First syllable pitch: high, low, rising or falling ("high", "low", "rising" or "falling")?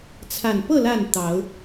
low